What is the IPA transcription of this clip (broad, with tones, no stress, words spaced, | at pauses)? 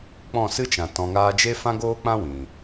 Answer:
k͡pɔ̃˦˨sɨ˦t͡ʃã˨ tɔ̃˨ŋaː˧d͡ʒe˦ fã˦ɡoː˦k͡pã˦ wĩ˨